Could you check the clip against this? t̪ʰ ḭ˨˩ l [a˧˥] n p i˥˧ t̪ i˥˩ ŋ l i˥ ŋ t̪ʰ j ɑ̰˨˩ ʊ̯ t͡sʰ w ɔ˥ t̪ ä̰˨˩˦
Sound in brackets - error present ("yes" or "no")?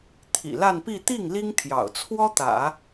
yes